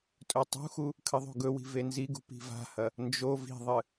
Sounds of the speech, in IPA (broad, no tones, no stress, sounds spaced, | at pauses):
tʼ ɵ tˤ ṳ x u | kʰ ɨ ðˤ o̤ ɡ ɵ w i̤ v e n z i ɡ ṳ p i̤ v a̤ h ɐ | n d͡ʒ o v i̤ ðˤ ɨ